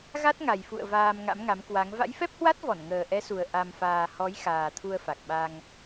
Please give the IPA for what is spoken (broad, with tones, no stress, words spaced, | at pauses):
ɣa˦˥t̚ŋa˨˩jfṵ˧˨ə̯ vaː˧m ŋa̰˧˥mŋa˨˦mkwa˨˦ŋ va̰˧˥jfɛ˦˥p̚hwa˦˥t̚ vɔ˧˩nŋəː˨˩ʔɛ˨˦su˨˩ə̯ ʔa˧mfaː˧ hɔ˨˦j xaː˨˩t̪ʰu˧ə̯fa˨˩k̚ɓa˧ŋ